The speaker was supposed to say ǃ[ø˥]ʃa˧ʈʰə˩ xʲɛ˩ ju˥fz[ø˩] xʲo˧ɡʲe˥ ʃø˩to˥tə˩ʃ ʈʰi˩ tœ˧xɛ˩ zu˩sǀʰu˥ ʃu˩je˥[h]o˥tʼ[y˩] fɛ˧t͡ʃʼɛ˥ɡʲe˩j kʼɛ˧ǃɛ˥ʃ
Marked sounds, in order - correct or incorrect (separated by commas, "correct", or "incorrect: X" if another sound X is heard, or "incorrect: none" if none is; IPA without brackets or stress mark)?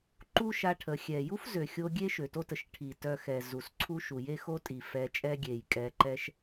incorrect: u˥, correct, incorrect: x, incorrect: i˩